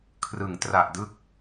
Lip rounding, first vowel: unrounded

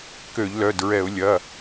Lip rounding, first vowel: rounded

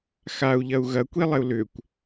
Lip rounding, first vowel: unrounded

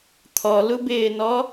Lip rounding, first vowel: rounded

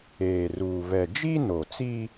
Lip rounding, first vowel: unrounded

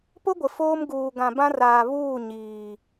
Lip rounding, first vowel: rounded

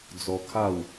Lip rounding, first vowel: rounded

